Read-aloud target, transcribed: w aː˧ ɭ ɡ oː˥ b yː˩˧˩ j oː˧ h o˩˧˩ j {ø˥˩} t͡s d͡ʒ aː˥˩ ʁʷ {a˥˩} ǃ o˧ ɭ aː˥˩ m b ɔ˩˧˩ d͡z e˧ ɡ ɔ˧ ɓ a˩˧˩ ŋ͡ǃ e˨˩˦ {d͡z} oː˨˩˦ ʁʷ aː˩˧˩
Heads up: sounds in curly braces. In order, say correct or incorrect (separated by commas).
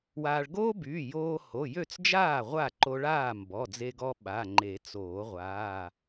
correct, correct, incorrect